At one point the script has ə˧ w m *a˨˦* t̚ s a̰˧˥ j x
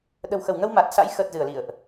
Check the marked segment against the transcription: incorrect: a˨˩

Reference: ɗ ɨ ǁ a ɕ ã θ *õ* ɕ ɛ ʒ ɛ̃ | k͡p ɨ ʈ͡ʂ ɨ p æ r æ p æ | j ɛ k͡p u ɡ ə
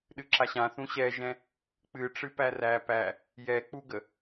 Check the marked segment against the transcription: incorrect: ũ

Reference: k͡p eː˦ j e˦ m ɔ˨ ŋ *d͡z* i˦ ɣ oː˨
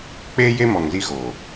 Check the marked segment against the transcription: incorrect: z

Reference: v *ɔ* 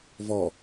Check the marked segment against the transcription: correct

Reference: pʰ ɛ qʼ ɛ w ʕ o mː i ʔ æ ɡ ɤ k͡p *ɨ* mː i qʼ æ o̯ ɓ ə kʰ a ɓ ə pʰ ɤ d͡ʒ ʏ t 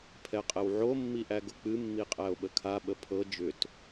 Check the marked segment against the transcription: correct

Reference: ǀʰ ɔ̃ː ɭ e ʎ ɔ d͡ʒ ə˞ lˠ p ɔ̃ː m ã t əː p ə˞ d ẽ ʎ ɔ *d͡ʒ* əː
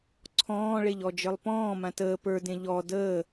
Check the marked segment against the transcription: incorrect: d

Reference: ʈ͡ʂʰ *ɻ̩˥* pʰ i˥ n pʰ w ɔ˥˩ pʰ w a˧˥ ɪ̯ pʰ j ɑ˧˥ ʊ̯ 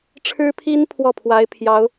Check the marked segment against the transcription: correct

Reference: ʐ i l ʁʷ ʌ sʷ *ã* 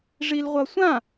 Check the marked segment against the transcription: correct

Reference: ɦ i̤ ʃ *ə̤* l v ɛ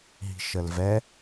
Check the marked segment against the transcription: incorrect: ə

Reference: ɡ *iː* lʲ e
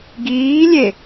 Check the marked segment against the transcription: correct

